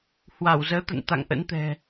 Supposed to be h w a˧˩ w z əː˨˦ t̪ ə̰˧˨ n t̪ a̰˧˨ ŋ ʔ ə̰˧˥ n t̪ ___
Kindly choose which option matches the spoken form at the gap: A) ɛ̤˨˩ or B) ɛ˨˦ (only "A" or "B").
A